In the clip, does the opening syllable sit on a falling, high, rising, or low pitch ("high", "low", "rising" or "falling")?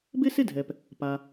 high